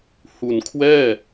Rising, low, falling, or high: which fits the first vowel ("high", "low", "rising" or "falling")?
low